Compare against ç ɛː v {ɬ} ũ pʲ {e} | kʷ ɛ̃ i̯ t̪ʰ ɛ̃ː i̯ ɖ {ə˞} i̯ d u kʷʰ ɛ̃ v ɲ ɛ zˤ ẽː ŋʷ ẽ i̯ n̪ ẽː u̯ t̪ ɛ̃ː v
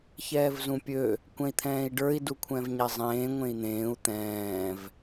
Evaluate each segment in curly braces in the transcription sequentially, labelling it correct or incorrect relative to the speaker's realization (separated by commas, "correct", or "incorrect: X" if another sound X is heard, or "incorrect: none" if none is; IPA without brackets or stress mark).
incorrect: z, incorrect: ø, correct